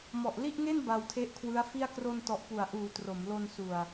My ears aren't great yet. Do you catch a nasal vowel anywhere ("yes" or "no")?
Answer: no